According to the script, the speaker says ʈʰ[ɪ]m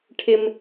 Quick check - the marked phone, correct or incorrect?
correct